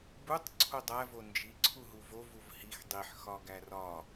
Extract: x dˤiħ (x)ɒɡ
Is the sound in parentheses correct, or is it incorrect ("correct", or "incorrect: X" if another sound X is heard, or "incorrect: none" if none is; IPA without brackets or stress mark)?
correct